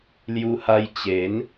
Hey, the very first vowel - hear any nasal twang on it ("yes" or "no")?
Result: no